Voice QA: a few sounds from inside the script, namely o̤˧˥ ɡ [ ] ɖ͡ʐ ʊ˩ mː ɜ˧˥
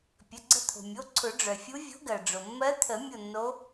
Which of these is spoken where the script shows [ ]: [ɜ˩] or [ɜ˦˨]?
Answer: ɜ˩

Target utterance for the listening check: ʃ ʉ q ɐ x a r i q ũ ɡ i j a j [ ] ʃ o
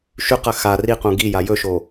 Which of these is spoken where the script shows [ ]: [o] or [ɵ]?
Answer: ɵ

